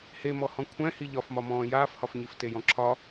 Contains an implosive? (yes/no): no